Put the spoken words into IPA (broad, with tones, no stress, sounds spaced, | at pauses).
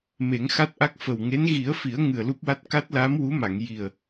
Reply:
m e˨˩˦ ŋ x a˦˥ t̚ ʔ a˦˥ k̚ f ə˨˩ w ŋ e˧˥ n ɣ i˨˩˦ ə̯ f i˨˩˦ ə̯ ŋ ɨ˨˩ ə̯ l u˦˥ p̚ w a˦˥ t̚ k a˦˥ t̚ l aː˧˥ m w u˧˥ m a˨˩˨ ŋ j i˨˩ ə̯